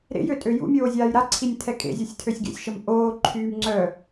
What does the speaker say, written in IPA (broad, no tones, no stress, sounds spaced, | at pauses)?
ɾ ḛ j ø tʼ ø j ṵ mʲ oː zʲ aː j ɾ a ǀʰ i nʲ tʰ ɛ kʼ ḛ zʲ o sʲ tʰ ø sʲ ɡ ḛ sʲ ʃ ə m ʔ oː ǃʰ yː m ŋ͡ǀ œ